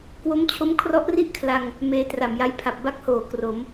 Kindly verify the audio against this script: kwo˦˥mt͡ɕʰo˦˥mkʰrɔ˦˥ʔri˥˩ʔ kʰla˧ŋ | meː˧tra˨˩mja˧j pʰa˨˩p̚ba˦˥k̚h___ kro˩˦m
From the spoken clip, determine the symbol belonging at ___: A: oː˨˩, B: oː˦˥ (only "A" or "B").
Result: A